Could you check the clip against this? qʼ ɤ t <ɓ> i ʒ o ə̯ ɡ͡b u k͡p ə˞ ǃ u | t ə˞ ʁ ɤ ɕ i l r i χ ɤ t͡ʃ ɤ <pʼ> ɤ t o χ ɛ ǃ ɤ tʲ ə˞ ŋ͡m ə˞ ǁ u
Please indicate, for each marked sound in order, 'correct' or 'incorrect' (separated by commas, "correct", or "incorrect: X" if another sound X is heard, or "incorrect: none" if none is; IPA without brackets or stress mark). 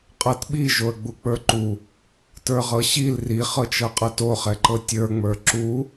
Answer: correct, incorrect: qʼ